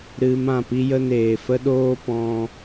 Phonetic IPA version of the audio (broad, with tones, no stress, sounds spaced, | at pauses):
ɾ ɨ˧ m ã˦˨ p i˦ j ə˦ n eː˨ f ə˦ ɗ oː˦ p ɔ̃˧